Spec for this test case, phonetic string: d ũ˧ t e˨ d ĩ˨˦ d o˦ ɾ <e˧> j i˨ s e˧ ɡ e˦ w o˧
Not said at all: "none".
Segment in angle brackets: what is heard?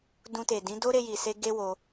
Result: e˧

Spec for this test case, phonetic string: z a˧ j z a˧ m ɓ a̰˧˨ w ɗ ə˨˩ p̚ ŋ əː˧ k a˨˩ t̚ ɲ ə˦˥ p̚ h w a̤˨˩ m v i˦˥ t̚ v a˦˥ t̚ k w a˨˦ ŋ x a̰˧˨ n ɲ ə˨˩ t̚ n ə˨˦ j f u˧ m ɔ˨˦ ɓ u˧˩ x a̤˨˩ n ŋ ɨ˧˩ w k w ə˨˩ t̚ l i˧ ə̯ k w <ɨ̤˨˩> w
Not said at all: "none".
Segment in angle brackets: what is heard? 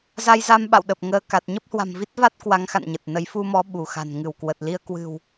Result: ɨ̤˨˩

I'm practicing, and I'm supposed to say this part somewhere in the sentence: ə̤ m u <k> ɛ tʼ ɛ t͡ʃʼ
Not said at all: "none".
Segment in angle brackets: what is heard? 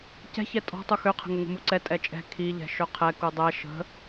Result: ǀ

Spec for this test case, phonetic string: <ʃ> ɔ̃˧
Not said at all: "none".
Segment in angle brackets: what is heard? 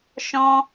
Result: ʃ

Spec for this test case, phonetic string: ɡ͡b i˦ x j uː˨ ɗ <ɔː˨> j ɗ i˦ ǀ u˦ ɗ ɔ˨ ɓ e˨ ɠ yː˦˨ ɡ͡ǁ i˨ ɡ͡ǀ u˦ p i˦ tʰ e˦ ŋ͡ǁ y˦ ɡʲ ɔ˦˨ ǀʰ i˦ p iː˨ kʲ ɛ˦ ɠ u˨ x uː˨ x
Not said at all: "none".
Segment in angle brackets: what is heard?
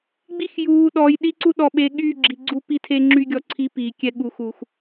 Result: ɔː˨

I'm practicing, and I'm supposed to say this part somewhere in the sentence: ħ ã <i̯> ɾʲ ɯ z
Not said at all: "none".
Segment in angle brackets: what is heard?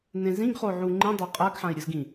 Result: i̯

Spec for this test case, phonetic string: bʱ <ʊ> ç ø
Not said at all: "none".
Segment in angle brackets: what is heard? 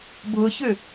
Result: ʊ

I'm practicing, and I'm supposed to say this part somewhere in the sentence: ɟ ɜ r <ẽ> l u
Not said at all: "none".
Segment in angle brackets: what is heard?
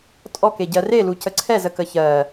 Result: e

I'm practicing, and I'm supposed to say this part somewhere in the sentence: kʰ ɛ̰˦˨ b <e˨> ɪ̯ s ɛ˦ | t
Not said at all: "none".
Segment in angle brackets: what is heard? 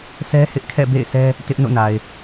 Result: ḛ˦˨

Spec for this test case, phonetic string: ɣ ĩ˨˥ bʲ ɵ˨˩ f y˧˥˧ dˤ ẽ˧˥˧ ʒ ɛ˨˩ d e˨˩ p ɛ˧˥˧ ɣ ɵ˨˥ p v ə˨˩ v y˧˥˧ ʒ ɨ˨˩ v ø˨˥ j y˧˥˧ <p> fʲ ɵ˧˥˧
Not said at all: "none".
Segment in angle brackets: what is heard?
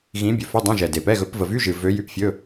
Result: p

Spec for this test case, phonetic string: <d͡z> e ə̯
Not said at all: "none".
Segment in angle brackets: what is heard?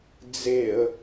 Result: d͡z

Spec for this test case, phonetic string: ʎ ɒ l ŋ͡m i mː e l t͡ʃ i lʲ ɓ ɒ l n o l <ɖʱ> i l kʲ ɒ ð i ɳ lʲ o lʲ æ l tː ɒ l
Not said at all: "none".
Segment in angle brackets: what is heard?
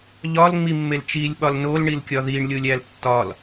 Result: ɳ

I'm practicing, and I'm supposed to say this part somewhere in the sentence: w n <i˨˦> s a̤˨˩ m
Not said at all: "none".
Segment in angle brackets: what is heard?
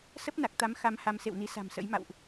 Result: i˨˦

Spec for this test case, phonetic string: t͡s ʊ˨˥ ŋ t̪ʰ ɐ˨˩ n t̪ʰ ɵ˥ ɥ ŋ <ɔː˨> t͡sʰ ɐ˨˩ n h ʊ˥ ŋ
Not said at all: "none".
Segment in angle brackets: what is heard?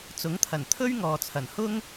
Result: ɔː˨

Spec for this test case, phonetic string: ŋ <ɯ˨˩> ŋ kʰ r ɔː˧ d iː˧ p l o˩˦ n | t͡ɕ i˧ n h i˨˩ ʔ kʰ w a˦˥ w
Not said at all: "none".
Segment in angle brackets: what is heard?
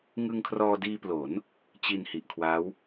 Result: ɯ˧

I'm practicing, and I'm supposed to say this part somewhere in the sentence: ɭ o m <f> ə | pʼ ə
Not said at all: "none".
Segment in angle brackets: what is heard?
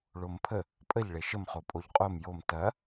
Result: pʰ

